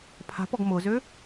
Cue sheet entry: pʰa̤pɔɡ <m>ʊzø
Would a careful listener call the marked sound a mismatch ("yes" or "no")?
no